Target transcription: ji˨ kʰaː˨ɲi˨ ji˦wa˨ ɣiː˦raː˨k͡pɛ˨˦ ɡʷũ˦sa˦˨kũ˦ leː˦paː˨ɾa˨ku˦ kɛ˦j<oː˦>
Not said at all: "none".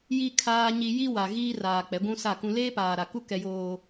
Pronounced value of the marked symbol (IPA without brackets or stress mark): oː˦